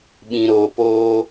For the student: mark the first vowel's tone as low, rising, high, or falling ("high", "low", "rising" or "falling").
low